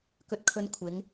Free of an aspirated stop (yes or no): no